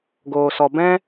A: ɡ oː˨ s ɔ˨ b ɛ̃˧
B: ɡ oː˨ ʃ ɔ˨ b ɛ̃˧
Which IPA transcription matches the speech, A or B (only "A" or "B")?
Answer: A